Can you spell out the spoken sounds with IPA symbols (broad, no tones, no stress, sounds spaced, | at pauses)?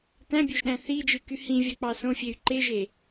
t æ̃ bʲ ø ʒ ɗ æ̃ θ i d͡ʒ ɯ k y h ĩ vʲ ɑ k͡p ɑ s õ fʲ e y̯ ǃ e ʒ e